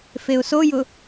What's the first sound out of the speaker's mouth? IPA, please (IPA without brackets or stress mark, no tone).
f